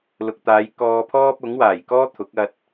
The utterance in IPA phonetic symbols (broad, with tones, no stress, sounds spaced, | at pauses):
l ʊ˨ k̚ t̪ aː˨˧ j k ɔː˧ pʰ ɔː˥ p̚ ʊ˨˥ ŋ w aː˨˩ j k ɔː˥ t̪ʰ ʊ˨˥ k̚ ɐ˧ t̚